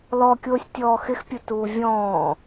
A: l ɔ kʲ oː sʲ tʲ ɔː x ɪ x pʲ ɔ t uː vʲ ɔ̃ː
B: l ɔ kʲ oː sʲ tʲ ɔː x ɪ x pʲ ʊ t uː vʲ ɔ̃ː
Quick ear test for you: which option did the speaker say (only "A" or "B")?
B